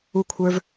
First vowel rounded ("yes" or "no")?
yes